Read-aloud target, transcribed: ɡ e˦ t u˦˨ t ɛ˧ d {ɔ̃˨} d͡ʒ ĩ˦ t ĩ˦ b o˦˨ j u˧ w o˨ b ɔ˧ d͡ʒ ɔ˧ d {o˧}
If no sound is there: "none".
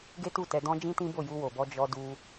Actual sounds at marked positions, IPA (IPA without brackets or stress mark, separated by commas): ɔ̃˧, u˧